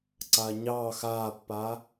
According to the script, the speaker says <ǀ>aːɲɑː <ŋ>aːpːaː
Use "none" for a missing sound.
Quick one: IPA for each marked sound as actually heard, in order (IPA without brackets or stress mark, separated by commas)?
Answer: ǀ, x